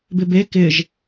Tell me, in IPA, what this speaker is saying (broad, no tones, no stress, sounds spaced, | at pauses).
b ɪ b e k ɪ ʒ